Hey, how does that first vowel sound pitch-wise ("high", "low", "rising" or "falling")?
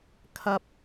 high